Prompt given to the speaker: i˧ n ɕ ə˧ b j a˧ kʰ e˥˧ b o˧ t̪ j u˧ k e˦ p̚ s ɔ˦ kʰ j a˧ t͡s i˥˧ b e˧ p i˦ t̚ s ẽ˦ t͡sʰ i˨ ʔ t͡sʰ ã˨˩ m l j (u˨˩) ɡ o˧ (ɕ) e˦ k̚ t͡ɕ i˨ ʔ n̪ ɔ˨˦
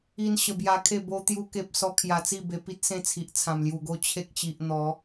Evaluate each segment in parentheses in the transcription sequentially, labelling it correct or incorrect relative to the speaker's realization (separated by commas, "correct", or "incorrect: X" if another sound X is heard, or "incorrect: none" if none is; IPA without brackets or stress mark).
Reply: correct, incorrect: t͡ɕʰ